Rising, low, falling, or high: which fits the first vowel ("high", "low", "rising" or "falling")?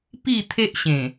falling